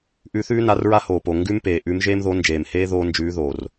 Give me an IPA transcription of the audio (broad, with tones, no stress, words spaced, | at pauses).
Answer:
ʔʉ˧˥θʉː˥na˧˥rɹa˥ hoː˨˩po˨˩ ŋɡʉ˥m peː˨˩ʔʉ˧˥m ʒeː˥mðo˧˥nd͡ʒeː˨˩mheː˥ ðoː˥ nd͡ʒʉː˧˥ðoː˨˩r